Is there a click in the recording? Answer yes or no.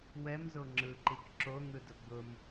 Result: yes